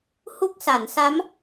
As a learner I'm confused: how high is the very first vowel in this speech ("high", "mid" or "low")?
high